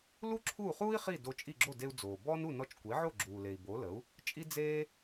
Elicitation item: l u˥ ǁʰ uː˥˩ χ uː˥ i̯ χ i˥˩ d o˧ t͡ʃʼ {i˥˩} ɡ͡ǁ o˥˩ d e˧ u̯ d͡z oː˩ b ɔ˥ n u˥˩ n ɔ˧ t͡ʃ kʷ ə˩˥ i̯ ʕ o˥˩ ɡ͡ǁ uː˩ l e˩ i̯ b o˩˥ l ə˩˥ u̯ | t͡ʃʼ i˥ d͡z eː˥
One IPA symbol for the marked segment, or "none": i˥˩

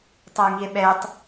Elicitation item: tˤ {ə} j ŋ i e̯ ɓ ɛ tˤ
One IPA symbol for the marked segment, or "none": ə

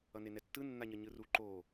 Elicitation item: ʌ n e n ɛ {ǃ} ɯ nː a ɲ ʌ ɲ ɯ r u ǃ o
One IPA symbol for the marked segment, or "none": tː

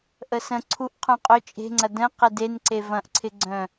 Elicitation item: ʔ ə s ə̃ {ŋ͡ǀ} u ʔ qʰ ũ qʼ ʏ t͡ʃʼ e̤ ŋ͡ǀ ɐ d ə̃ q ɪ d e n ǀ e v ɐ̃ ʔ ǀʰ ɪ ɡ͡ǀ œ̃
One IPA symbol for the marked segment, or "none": ǀʰ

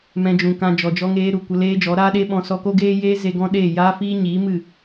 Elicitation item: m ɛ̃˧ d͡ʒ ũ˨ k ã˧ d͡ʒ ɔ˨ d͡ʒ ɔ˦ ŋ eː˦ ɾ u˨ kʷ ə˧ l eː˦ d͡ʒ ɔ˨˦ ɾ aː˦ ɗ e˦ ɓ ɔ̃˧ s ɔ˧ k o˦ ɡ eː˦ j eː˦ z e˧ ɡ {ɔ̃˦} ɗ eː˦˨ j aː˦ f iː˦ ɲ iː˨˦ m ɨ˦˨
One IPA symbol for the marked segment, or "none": ɔ̃˦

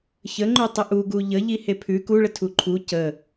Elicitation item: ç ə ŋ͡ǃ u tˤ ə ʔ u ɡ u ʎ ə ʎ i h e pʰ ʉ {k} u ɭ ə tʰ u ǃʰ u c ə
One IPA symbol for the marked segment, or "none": k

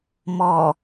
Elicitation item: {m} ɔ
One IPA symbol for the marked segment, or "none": m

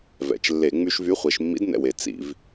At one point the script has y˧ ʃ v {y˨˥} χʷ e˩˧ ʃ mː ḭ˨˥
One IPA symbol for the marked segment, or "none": y˨˥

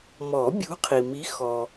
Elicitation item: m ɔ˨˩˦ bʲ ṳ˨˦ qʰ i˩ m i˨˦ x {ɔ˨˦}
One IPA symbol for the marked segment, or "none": ɔ˩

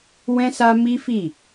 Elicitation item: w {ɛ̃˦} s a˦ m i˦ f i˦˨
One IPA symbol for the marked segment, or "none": ɛ̃˦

